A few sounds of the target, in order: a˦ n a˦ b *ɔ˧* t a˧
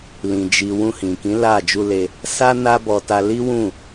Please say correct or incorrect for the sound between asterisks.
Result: correct